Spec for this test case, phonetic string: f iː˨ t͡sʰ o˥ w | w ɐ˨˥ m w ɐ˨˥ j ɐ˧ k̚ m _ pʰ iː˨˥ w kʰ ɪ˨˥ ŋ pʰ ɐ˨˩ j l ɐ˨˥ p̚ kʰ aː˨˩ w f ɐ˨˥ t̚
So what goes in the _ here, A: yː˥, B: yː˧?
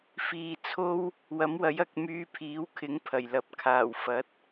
B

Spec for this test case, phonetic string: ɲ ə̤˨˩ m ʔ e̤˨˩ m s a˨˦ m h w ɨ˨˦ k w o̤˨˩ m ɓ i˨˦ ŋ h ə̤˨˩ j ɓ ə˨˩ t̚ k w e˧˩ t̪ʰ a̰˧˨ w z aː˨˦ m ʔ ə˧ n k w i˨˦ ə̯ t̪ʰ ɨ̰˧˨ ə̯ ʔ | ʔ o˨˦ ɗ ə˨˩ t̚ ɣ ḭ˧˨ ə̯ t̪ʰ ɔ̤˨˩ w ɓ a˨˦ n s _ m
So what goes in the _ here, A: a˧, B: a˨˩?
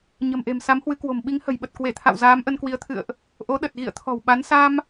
A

